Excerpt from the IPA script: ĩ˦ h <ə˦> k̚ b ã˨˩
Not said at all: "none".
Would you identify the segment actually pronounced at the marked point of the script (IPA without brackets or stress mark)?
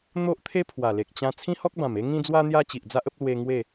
ɔ˦